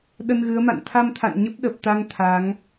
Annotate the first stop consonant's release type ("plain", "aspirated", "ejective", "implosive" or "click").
implosive